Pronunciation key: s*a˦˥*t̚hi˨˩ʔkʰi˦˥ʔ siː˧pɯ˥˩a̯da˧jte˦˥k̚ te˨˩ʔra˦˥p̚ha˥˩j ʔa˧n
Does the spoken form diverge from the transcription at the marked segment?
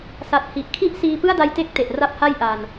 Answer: yes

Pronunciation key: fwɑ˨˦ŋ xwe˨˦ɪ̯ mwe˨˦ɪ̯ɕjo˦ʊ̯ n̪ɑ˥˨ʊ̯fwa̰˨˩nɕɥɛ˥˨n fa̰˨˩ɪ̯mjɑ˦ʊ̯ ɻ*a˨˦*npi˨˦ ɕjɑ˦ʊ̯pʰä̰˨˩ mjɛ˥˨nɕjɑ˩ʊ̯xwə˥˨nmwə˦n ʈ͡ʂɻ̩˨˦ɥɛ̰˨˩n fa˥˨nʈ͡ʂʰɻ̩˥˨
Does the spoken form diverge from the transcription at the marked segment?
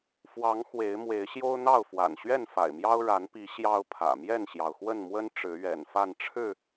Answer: no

